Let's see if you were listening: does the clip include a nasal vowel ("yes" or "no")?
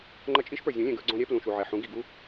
yes